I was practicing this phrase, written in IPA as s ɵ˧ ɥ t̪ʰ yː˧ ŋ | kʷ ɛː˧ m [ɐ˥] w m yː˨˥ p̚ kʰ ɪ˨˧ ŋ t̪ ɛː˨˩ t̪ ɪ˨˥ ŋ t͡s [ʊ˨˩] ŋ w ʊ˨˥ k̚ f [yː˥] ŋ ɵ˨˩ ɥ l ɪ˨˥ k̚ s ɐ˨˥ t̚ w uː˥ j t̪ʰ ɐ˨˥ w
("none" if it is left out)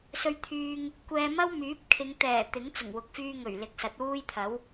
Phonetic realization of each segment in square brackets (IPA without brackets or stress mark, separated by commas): ɐ˥, ʊ˨˩, yː˧